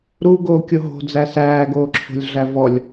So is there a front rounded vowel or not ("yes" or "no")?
no